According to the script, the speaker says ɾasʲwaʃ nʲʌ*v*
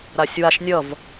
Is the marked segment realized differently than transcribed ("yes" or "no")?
no